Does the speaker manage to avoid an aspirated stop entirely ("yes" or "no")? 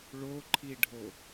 no